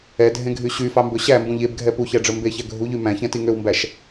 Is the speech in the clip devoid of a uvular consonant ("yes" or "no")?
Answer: yes